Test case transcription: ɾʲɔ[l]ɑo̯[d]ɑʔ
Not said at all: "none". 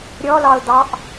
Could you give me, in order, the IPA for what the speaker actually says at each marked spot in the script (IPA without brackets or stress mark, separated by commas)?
l, d